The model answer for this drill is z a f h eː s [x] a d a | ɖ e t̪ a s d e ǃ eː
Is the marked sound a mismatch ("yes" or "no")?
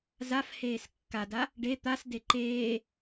yes